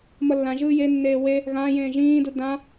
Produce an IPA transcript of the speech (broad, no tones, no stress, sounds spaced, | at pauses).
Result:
m ʌ lː ã ʒ ɯː j e nː eː w e | ɣ ãː j ẽː ʒ ĩː d u d ã